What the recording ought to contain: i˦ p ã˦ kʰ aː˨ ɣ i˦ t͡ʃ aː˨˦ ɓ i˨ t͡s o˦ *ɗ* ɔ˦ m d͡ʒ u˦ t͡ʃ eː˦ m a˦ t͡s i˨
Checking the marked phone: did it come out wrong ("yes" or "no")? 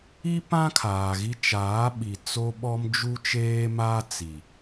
yes